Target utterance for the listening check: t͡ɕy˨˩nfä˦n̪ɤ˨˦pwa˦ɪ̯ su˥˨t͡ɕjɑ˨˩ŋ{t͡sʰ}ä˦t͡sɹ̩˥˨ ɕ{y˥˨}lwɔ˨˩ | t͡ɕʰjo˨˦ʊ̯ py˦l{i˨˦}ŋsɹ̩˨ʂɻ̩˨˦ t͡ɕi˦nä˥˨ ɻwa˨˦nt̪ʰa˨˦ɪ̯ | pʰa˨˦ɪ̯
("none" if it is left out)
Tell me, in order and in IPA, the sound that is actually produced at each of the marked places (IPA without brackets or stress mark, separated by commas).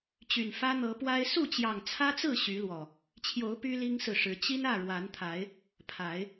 t͡sʰ, y˨˦, i˦